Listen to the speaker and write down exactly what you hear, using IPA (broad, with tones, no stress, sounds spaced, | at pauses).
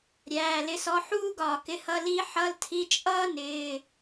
ɾʲ æː˩˧˩ l ɪ˨˥ s ɔ˨˥ ħ uː˥ ɡ ɒː˧˩ k ɪ˧˥˧ h ʌ˧˥˧ l i˥ ħ ʌ˧˥˧ l tʰ i˧˥˧ t͡ʃʼ ʌː˥ n ɪː˧˥˧